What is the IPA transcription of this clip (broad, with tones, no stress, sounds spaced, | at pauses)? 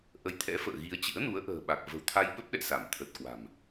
ʔ ə˨˦ j t̪ʰ ɛ̰˧˥ f ə̰ː˧˨ ɣ i˨˦ ə̯ t͡ɕ ɨ̰˧˥ ə̯ n u˨˦ ə̯ ʔ ə̤ː˨˩ ɓ a˨˩ k̚ v ə̤˨˩ w t̪ʰ a˧ j ɓ ə˦˥ p̚ ɗ ɛ̰˧˨ s a˧˩ m t̪ʰ ə˨˩ t̚ k w a̤˨˩ m